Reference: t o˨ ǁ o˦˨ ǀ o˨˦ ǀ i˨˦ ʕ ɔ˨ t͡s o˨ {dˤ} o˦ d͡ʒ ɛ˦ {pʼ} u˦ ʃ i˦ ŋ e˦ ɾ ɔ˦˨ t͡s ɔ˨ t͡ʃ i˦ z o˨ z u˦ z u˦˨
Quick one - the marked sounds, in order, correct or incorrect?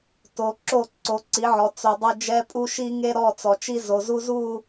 correct, correct

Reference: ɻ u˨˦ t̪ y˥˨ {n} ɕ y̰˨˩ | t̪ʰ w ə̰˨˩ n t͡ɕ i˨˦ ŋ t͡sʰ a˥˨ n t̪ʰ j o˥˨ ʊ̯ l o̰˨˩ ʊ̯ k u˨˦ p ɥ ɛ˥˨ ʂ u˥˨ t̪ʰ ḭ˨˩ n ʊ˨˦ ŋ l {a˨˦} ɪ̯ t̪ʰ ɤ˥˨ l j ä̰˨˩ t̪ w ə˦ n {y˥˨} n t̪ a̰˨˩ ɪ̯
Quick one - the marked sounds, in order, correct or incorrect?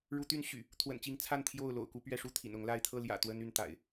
correct, incorrect, correct

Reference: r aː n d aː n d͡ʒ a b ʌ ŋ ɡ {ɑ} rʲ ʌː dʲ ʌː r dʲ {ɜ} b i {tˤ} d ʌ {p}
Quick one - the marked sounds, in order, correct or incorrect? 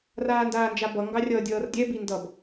correct, incorrect, incorrect, incorrect

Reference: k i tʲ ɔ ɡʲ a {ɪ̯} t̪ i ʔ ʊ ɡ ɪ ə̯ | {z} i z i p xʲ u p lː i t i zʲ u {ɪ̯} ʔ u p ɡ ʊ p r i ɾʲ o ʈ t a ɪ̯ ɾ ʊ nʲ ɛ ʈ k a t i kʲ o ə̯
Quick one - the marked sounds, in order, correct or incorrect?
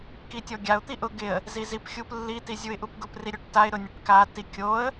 incorrect, correct, correct

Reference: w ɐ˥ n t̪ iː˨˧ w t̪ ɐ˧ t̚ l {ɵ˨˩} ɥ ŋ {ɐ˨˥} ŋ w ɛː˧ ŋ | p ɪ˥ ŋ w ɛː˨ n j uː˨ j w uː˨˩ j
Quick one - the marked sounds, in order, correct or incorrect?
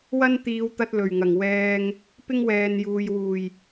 correct, incorrect

